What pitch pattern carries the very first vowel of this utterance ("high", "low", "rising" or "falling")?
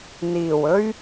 low